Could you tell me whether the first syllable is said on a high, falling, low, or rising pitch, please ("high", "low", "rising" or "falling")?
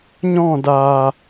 falling